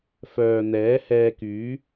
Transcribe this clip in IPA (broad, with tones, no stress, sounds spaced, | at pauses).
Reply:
f œː˨ n̪ ɛː˨˥ h ɛː˧ k yː˨˥